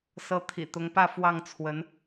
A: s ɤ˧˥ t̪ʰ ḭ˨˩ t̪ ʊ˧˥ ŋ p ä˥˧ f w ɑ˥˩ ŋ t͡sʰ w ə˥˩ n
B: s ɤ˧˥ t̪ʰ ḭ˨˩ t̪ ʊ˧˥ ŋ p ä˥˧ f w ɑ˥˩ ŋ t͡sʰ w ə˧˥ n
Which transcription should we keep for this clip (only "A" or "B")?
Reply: B